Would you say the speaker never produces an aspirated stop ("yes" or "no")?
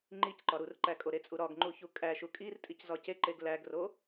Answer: yes